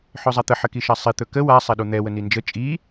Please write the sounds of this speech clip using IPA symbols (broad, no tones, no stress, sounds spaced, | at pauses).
ħ ɵ zˤ a t̪ ə ħ ə k i ʃ a sˤ i t̪ ɵ k ə w a sˤ ɛ ɗ u n̪ ɛ w ə n i n d͡ʒ ə t͡ʃʼ i